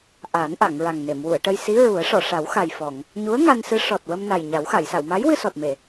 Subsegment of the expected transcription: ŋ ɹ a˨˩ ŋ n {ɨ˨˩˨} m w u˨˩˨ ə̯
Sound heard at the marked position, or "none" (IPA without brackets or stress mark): e˨˩˨